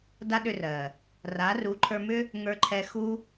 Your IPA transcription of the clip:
da˦ɗʏ˧rɜ˨ | ra˨˦ru˨˦ǃʰə˞˧mʏ˦ | ŋə˞˧ǃʰɛ˧xu˦

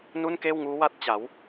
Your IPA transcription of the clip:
nu˥˩nkeː˥˩wŋuː˦˥wa˥˩t̚ t͡ɕa˩˦w

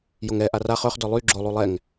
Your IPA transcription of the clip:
joŋɛ ʔaraχ œχ dœlˠy ɡ͡ǁo lˠulˠɛŋ

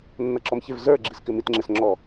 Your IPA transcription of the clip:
nːʌǁɔmçɪv zə˞ɡ͡ǁiskɪ mitŋ͡ǁɪs ŋ͡ǁɔ

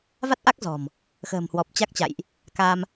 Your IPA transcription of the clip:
va˦˥t̚ʔa˦˥k̚ zɔ̤˨˩m | xə̤ː˨˩mhwɔ˨˩p̚t͡ɕa˦˥k̚t͡ɕa̰˧˨jʔ | ka˧m

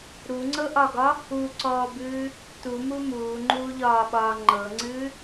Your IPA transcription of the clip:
ɾuŋ͡ǀɤʔɒɡɒ | uǀɔːbɨː | tumu muːŋ͡ǃuːʎɒːɓɒː ŋ͡ǃɤŋ͡ǀɨː

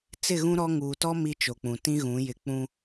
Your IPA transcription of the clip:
t͡sɪ˦˨ɣũ˦ ɾɔ˦ ŋuː˨tɔ˦ mi˦t͡ʃo˨k͡pũ˨ tĩ˦ɣũ˨˦ jɪ˦ k͡pũ˦

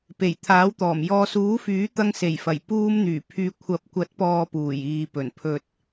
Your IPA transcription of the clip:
pe˨˩jt̪ʰaː˨˥wt̪ɔː˨˩m jɔː˨suː˨˥fyː˨˥t̪ɐ˧ŋ se˨˩jfɐ˨˩j puː˧mn̪yː˨˩pʰyː˨ kʷʰɐ˨p̚ kʷɐ˨˥t̚pɔː˨ puː˨˩jiː˨pɵ˨˩n pʰɵ˨t̚

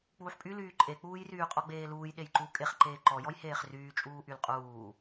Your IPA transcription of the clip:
k͡puːħpʼy lyːǃʼek͡puːj ryːqʼɔɡ͡beːluːj ɗejǃu kʼeχǃeː ǃɔjɔj heːχryːt͡ʃʼuː ʔylqʼuː

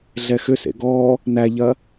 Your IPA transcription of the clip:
ɮɛxʏsḛ ɡɔ | næʎɐ

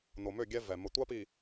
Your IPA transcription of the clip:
no˨mø˦˨ɡʲɛ˦ vɛ˨ mə˨tʷa˦pi˨

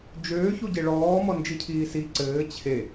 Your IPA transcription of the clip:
d͡ʒøːçuɟe ɭɔːmɔnd͡ʒicʰiː si ǀɘː t͡ɕʰe

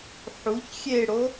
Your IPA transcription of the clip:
ħuç xʲeɽo

